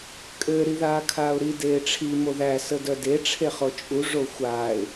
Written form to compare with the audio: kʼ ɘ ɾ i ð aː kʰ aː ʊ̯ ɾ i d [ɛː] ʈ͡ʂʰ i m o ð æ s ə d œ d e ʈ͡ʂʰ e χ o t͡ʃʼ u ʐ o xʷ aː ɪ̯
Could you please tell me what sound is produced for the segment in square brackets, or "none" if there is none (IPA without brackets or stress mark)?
eː